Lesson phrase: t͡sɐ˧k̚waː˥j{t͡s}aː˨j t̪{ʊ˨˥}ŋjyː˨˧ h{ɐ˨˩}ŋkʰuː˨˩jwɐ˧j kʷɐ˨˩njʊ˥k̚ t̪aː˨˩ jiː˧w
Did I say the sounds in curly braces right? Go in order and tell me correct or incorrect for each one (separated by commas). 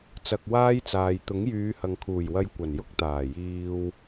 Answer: correct, correct, incorrect